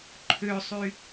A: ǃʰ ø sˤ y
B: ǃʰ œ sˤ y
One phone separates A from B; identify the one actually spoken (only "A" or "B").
A